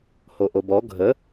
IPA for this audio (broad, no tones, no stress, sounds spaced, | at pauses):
h o ʔ o b ɔ ɡʱ ə